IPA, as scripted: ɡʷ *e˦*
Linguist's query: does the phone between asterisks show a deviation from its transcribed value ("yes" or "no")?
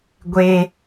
no